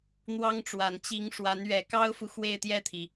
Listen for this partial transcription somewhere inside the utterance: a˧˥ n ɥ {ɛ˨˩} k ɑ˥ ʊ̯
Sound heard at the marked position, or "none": ɛ˨˩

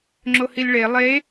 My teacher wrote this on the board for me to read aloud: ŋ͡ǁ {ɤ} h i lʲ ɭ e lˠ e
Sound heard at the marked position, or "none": o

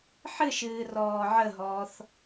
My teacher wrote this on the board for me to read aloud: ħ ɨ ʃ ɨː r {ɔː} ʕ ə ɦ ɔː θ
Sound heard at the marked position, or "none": ɔː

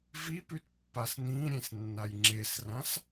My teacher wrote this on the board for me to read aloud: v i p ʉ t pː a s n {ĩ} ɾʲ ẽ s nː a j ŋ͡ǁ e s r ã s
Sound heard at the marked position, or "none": ĩ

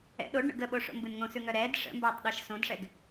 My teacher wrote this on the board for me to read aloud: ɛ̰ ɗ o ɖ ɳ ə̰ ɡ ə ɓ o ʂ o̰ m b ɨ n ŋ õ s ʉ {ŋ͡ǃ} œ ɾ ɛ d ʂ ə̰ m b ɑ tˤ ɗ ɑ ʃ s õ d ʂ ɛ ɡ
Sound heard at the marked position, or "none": ŋ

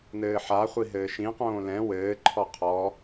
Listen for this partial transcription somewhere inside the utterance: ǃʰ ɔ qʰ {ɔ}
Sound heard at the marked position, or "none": ɔ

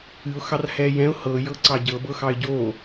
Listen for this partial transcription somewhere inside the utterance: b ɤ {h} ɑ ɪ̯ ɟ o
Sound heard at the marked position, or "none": x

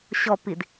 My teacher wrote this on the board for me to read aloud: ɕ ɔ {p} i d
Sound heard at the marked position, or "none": p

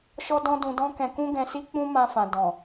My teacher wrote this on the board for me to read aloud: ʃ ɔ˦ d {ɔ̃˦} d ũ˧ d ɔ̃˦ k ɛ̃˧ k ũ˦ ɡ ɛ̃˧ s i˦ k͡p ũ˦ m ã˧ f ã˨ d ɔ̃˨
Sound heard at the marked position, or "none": ɔ̃˦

